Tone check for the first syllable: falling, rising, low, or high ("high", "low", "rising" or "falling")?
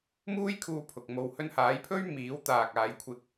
high